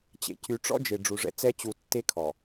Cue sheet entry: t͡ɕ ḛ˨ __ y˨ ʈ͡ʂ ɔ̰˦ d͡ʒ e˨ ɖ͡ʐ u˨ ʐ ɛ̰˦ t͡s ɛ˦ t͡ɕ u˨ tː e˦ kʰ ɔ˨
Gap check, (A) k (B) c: B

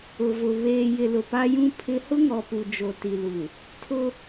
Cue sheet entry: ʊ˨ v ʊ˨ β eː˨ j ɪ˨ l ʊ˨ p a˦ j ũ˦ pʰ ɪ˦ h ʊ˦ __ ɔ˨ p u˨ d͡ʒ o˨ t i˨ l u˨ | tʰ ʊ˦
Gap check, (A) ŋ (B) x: A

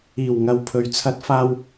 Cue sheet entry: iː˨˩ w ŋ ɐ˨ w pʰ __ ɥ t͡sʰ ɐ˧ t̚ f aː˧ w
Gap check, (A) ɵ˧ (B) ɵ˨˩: B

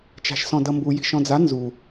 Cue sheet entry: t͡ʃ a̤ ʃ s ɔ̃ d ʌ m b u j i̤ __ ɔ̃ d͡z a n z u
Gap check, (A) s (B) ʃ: B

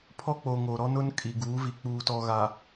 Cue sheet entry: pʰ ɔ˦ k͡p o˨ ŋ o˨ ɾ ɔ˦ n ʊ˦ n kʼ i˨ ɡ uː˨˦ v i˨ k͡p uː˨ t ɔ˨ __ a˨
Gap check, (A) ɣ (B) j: A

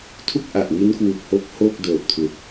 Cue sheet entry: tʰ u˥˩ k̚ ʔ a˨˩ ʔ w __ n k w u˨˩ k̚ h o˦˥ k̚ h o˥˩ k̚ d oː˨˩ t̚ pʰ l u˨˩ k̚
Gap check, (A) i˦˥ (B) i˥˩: A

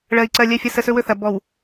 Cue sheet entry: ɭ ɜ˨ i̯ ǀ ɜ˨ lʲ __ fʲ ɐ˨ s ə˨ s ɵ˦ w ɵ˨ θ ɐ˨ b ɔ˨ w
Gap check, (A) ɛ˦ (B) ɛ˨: B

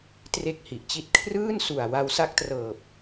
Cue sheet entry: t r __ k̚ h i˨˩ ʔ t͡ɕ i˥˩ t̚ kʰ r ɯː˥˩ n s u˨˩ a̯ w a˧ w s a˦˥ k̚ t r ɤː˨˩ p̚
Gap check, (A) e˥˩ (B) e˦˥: A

